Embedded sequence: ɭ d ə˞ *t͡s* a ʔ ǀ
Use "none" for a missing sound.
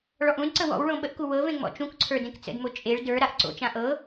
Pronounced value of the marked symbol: ɾ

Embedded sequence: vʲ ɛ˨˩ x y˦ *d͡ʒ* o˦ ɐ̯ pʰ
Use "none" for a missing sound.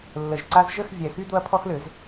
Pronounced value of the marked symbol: d̪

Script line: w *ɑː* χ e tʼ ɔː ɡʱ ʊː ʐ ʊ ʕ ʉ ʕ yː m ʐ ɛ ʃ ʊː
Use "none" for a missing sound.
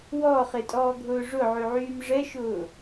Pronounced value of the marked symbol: ɔː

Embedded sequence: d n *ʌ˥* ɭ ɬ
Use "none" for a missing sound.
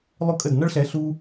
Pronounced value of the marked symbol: ʌ˥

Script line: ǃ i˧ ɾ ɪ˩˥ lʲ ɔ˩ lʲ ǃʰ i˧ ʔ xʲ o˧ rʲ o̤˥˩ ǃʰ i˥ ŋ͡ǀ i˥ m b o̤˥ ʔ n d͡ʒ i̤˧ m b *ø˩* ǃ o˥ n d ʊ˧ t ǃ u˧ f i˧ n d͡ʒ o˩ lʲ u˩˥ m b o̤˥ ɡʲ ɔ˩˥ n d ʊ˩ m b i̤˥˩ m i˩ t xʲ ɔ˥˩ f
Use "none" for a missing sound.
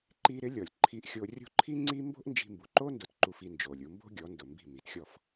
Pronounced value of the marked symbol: u˩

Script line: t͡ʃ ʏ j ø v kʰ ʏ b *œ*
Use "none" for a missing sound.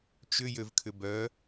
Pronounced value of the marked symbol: œ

